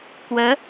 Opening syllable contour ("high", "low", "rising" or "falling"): rising